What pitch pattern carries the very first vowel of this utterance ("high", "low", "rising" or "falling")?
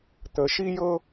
rising